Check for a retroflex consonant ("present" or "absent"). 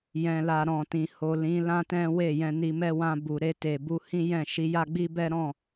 absent